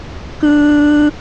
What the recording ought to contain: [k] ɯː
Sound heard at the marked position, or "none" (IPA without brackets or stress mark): k